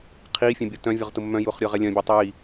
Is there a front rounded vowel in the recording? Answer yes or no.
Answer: yes